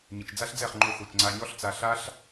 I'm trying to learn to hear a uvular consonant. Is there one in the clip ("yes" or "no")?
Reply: yes